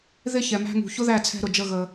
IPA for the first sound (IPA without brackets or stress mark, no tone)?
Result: ð